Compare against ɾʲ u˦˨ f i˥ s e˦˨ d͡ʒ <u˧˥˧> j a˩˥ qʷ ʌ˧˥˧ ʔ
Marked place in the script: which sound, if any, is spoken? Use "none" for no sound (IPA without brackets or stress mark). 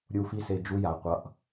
u˥